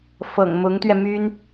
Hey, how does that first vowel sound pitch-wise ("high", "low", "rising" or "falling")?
low